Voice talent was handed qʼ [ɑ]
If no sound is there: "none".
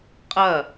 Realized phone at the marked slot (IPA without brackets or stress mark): ɐ